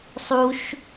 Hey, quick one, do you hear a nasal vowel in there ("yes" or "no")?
no